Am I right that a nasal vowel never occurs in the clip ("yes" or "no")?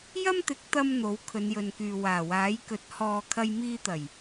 yes